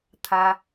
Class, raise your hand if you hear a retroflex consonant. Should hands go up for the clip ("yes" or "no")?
no